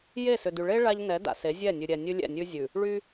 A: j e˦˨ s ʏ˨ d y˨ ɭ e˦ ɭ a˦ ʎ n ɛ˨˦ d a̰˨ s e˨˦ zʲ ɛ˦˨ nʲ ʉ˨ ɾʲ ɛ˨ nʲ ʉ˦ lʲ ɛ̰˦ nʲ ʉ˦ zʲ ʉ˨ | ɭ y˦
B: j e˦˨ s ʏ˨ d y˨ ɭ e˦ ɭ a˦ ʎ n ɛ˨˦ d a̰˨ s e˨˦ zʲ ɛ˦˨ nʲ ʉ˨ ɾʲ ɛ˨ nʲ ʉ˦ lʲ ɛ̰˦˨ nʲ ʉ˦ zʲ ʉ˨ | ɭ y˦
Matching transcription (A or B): B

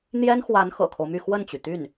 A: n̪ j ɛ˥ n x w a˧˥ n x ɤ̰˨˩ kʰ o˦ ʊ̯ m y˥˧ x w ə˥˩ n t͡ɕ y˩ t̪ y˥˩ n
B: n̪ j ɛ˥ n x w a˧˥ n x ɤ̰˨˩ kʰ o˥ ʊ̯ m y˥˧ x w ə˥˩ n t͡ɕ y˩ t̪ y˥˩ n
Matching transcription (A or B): A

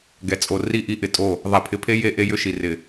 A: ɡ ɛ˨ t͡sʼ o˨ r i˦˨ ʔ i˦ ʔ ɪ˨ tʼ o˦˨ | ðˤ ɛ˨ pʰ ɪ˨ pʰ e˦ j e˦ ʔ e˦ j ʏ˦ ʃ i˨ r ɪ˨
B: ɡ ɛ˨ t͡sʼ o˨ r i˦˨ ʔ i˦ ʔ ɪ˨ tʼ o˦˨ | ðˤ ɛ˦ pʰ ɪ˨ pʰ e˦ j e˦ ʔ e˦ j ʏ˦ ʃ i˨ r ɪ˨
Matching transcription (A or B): A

